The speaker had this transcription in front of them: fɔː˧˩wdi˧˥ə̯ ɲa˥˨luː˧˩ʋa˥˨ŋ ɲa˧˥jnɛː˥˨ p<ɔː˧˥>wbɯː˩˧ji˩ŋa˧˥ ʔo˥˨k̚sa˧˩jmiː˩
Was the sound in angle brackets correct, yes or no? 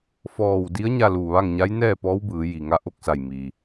yes